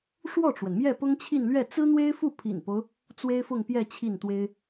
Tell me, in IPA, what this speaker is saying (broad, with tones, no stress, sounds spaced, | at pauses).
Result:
ʂ w ɔ˥˩ ʈ͡ʂ w ə˩ n m j ɛ˥˩ p ʊ˥ ŋ t͡ɕʰ i˥˧ n l ɥ ɛ˥˩ t͡s ɹ̩˥ n̪ w e˥ ɪ̯ f u˥˩ pʰ ḭ˨˩ n p o˦ ʊ̯ | t͡s w e˥ ɪ̯ f ʊ˥˧ ŋ p j ɛ˥˧ t͡ɕʰ i˥˩ n t̪ w e˥ ɪ̯